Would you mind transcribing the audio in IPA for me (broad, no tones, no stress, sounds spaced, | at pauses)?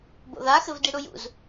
b o̰ ð a x ɘ v d i ɽ u j ṵ z